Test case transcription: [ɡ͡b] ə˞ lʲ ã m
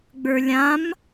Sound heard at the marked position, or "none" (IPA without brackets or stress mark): ɡ͡b